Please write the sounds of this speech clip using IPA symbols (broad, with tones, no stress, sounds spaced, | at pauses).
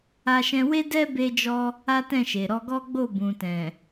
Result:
a˧ ʃ ɛ̃˧ w e˦ d ɛ˦ b e˧ d͡ʒ ɔ˧ | a˦ t ɛ̃˦˨ ʃ e˨ ɾ ɔ˧ ɡ ɔ˦ ɡ͡b o˦˨ b ũ˨ t ɛ̃˨